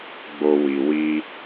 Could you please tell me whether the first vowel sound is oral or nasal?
oral